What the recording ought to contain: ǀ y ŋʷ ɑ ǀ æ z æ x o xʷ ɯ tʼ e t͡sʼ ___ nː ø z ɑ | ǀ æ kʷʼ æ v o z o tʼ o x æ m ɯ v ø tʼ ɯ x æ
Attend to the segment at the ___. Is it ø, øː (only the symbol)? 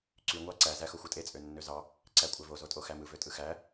ø